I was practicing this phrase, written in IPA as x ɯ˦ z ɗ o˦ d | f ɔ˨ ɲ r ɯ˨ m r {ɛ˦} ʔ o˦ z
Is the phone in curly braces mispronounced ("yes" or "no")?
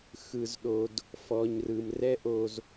no